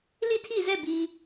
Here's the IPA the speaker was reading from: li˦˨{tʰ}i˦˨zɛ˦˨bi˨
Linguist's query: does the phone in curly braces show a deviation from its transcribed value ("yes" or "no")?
no